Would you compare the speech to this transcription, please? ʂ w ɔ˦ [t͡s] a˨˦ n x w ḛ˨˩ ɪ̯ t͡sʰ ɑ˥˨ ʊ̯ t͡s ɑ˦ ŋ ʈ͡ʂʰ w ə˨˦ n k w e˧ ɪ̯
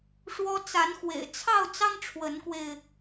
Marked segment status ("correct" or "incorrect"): correct